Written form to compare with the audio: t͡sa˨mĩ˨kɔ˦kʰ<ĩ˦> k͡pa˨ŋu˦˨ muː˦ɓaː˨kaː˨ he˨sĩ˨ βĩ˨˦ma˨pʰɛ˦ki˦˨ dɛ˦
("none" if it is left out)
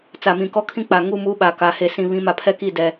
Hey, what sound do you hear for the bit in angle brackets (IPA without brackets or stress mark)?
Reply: ĩ˦